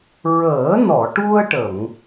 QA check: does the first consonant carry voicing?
yes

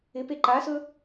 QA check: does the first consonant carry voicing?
no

